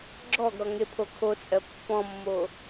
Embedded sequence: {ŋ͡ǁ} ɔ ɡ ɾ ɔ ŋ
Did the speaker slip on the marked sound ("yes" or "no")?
yes